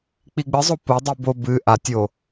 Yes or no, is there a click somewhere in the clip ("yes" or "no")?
no